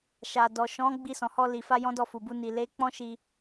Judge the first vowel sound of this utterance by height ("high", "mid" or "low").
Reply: low